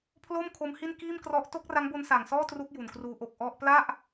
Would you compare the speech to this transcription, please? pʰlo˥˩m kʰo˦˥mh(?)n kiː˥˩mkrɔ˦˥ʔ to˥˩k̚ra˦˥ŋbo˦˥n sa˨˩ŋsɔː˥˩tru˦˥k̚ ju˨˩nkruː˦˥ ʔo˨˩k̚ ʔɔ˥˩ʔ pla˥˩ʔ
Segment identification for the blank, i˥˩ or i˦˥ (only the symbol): i˥˩